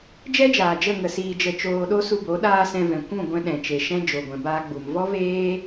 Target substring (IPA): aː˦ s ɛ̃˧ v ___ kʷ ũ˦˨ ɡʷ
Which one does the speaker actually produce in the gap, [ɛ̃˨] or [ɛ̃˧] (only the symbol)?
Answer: ɛ̃˨